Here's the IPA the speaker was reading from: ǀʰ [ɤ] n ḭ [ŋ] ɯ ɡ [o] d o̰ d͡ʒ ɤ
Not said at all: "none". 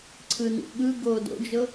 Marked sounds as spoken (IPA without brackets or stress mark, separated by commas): ɯ, ɠ, oː